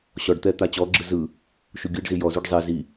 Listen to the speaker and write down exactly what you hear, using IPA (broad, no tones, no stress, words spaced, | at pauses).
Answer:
ɕɔɖt̪ɛ t̪at͡ɕɔɡ͡ǁɯ zɯ | ʃuɡʲɯɖzi jɔzuɖ zˤi zi